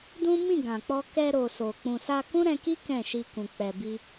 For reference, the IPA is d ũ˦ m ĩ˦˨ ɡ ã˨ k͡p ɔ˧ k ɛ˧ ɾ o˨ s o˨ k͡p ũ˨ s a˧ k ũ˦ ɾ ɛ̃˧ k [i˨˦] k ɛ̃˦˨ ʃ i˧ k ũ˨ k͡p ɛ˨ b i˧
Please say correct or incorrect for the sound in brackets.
incorrect